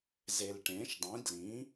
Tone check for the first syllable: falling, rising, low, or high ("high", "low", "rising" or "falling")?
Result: low